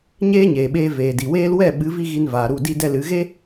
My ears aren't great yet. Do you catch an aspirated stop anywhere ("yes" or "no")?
no